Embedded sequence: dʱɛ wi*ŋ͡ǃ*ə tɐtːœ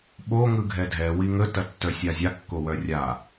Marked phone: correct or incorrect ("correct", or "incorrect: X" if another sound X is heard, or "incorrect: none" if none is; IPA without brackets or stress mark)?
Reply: incorrect: ŋ